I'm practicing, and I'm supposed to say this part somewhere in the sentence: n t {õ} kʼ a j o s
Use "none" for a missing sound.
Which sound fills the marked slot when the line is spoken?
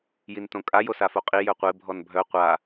õ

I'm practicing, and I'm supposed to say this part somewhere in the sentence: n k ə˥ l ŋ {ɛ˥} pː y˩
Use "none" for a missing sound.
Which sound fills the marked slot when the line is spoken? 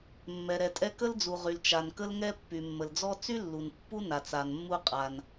ɛ˥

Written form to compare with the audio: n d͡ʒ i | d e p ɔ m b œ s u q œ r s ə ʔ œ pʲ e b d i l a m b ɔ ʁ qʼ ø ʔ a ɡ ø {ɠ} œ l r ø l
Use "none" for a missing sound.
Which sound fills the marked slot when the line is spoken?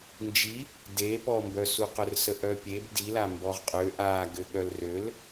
ɠ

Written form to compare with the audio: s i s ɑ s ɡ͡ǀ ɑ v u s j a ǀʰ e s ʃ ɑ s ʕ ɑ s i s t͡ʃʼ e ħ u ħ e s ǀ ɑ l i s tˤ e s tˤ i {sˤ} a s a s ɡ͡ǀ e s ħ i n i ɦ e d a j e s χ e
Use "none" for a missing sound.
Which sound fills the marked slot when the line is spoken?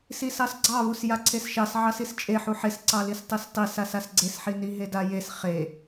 s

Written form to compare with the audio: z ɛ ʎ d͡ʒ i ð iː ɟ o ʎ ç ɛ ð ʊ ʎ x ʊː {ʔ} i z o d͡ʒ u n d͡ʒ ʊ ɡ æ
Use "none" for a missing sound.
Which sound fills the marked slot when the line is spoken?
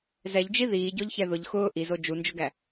ʔ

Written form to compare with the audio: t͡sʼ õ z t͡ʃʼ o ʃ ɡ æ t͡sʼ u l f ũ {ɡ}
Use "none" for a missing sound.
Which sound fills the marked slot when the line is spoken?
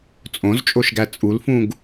ɡ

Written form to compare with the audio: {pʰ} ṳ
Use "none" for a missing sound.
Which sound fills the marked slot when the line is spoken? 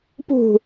p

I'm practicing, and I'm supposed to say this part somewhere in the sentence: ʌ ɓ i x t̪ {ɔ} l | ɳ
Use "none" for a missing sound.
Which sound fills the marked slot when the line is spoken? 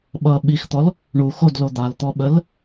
ɔ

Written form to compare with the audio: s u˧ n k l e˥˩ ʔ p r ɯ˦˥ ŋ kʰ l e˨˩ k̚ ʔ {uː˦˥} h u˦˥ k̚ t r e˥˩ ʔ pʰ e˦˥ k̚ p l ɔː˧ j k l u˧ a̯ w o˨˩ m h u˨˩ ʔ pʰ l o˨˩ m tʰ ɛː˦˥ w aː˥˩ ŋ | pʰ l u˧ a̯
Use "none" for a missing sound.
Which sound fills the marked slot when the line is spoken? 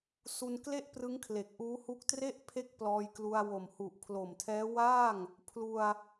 uː˦˥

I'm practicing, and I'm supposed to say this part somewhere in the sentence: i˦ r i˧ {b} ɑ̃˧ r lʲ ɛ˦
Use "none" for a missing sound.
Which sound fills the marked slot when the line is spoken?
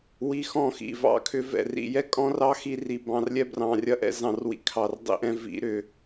b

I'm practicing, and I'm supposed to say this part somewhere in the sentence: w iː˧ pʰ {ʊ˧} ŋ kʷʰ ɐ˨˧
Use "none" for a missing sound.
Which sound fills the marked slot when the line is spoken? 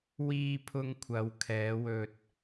ʊ˧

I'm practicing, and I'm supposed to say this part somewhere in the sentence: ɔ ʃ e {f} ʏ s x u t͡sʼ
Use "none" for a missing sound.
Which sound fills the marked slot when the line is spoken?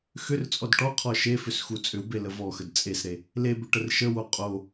f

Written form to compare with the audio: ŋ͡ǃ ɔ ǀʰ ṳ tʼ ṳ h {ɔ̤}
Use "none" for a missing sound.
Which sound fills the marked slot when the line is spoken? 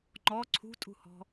ɔ̤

